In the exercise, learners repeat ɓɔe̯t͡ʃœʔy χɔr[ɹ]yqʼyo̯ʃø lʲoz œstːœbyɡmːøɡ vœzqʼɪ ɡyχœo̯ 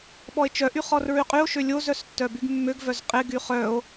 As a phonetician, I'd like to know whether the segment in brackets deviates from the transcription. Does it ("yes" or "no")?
no